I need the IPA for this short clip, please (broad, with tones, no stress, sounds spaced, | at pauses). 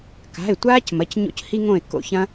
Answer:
k a̤˩˧˩ ɪ̯ tʷ aː˦ c m ɐ˩˧˩ c ɲ o̰˦ c h i˦ ŋ õ˦˨ ɪ̯ k o̰˦˨ ç ɐ̃˦